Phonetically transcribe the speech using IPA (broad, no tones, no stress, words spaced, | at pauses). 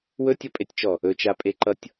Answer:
wɵtʲʌpʼetʲt͡ʃɔ | ɵt͡ʃapʼeǃʌtʲ